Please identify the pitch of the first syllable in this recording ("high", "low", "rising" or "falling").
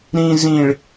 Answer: low